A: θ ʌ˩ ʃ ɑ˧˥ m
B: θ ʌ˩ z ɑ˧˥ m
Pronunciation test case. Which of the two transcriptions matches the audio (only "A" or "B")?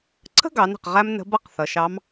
A